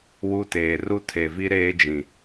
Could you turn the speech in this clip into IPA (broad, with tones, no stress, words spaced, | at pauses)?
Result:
wu˦teː˨ ru˦tʰe˨vi˦ ɾeː˦d͡ʒĩ˨